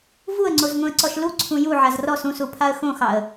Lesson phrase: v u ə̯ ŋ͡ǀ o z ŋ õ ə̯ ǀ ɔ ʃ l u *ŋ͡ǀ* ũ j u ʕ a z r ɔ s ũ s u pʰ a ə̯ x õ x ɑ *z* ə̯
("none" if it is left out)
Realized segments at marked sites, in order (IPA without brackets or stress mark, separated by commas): ǀʰ, none